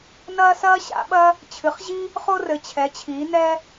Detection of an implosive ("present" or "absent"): present